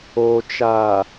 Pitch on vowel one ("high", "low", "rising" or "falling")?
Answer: low